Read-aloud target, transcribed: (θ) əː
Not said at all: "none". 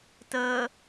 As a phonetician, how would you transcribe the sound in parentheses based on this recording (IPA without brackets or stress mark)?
t